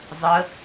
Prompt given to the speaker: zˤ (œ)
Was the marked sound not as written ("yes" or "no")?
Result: yes